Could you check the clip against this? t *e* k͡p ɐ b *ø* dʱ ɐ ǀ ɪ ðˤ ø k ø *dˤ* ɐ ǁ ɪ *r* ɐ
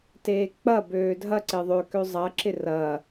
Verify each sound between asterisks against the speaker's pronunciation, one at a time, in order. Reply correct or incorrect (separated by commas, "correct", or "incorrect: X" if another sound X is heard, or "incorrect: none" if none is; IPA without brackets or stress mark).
incorrect: eː, incorrect: øː, incorrect: zˤ, correct